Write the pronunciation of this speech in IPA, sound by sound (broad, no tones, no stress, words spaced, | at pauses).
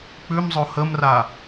k͡pʉmzˤo həmra